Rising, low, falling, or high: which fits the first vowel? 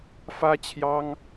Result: high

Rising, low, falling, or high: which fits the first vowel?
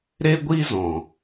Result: high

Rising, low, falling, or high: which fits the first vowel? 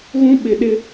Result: high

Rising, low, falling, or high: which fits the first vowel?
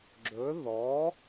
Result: rising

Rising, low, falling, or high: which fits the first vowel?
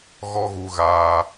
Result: high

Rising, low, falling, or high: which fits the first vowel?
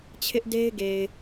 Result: high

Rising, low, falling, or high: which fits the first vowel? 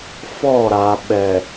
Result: falling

